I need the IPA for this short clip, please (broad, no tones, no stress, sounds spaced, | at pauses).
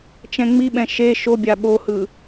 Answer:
t͡ʃ ɛ̃ ŋ͡m i ɓ ɛ̃ ʃ e ʃ o bʲ a ɓ o h ɯ